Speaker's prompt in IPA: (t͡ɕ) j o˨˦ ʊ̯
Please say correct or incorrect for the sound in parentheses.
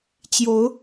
correct